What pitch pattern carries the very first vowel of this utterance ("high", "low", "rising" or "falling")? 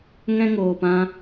high